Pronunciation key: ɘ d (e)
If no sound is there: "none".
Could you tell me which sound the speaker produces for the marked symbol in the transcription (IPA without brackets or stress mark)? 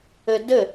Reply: ɘ